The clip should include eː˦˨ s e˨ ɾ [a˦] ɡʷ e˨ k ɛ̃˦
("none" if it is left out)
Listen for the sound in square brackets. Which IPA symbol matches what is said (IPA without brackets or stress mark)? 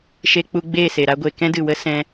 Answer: a˦